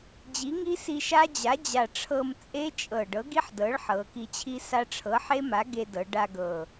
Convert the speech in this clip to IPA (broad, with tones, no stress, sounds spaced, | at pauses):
d͡ʑ i˩˥ ŋ i˦˥ s i˧ ʃ a˦˥ d͡ʑ a˩˥ d͡ʑ a˨˩ ʈ͡ʂʰ ɤ˧ m t͡sʼ e˦˥ t͡ʃʼ ɤ˨˩ ɖ ɤ˩˥ ɡ i˦˥ ħ d ɤ˩˥ ɭ ħ ɤ˩˧ k i˧ t͡ɕʰ i˦˥ s a˦˥ ʈ͡ʂʰ ɤ˩˥ ħ e˦˥ m a˩˥ ɡ e˧ d ɤ˩˧ ɖ a˧ ɡ ɤ˨˩